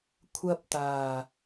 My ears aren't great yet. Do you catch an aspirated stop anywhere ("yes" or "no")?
yes